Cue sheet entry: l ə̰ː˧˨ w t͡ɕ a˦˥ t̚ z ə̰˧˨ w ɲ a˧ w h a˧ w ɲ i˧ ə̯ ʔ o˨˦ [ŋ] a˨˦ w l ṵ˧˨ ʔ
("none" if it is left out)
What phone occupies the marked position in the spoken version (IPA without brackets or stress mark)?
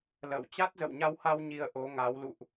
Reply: ŋ